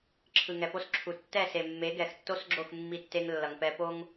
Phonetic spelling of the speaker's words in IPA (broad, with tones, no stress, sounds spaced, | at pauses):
ǁʰ ɯ˨ ŋ ɛ˨ p o˦ s ǁʰ u˨ tː ɛ˦˨ s e˨ mː e˨˦ ɡ ɛ˨ x tː o˦ s ɡ͡ǁ o˦˨ x mː i˦ tː e˦ ŋ lː ʌ˨ ŋ p ɛ˦ p o˦ ŋ